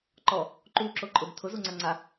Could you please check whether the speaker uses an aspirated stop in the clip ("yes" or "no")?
yes